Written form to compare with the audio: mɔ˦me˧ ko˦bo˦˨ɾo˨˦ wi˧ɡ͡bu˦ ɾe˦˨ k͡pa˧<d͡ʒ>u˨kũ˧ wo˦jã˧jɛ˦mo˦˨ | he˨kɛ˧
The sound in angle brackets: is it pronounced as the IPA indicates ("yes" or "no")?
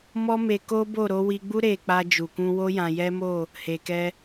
yes